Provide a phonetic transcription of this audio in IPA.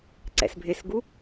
ǀ ɛ̰ s bʱ ɪ s ɡ u

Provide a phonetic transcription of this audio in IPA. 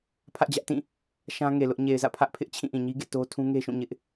pʰ ä˦ ʔ d͡ʑ ä˦ ʔ t ĩ˦˨ | ʃ ã˦ ŋ e˨ l ʊ˦ ʔ ɲ e˨ ɪ̯ z ä̰˦˨ pʰ ä˦ ʔ pʰ ɪ˦ ʔ t͡ɕʰ ĩ˦˨ ʔ ĩ˨ ɲ i˦ ɡ ḛ˦˨ t o˦ tʰ ũ˦ ŋ e˦ ʃ ũ˦˨ ɲ ɪ˦ ʔ

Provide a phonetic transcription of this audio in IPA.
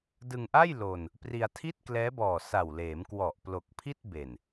d ɯ˧ ŋ ʔ a˥˩ j l o˧ n | p r i˧ a̯ tʰ i˥˩ t̚ k l ɛː˦˥ b ɔː˨˩ s a˨˩ w l eː˩˦ m k w ɔ˨˩ ʔ p l o˨˩ k̚ pʰ i˥˩ t̚ b e˨˩ n

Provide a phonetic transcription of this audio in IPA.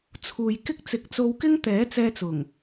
t͡sʰ uː˨ j k ɪ˥ k̚ t͡s ɪ˨˥ k̚ t͡s o˧ w k ɪ˥ ŋ t̪ ɛː˨˥ t͡s ɛː˧ t͡s ʊ˨˩ ŋ

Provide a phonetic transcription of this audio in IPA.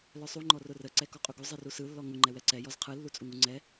l œ sˤ u ŋ͡ǃ ɔ r ʊ r ə ǀ ɛ k ɔ qʼ u ɡ u zˤ ɯ r u s ɯ lː ɔ ŋ ʊ ŋ͡ǃ ɛ w ɛ ǀ ɛ j ɔ z qʰ ɯ lː u t͡sʼ u ŋ u ŋ͡ǀ ɛ

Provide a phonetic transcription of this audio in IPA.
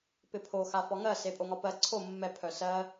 p ɪ pʰ o x a f ɒ ŋ ɜ s e pʼ o ŋ ɒ p ɜ ǀʰ o mː ɛ pʰ œ s ɜ

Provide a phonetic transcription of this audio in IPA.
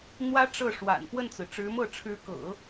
n̪ w ä˥ ʈ͡ʂ ɤ˥˩ ʂ w a̰˨˩ n p w ə˥˩ n t͡s ɹ̩˩ ʈ͡ʂ ɻ̩˧˥ m ɤ˥˩ ʈ͡ʂʰ ɻ̩˧˥ k ɤ̰˨˩˦

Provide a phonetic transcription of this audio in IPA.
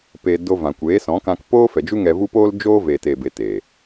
p eː˧ d o˧ v ã˨ kʷ eː˨˦ s ɔ̃˨˦ k ã˧ k p oː˦ f ɛ˨ d͡ʒ u˦ ŋ ɛ˧ v u˦ p oː˦ l d͡ʒ oː˦ v e˨ t e˨ b e˧ t eː˨

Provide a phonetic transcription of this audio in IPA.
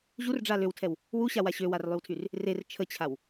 ʑ u r ɖ͡ʐ a l ø w tʰ ɛ w | w u ɕ a w a ɕ ø w a r lˠ y w tʰ y r | r e r t͡ʃʰ ə t͡ɕʰ a w

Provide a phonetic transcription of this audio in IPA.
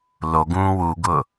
l o ɡ ũː w u ɡ ʊ

